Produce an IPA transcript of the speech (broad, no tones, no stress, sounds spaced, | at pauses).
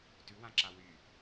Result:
t ʉ w ã ǁ a w y